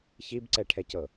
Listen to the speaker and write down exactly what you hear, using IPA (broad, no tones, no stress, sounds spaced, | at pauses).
ç i b ǀ ɛ ʈʰ ɛ c ɤ